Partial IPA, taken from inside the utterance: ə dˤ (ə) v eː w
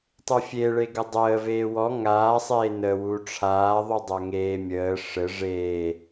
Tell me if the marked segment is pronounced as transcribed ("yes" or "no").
no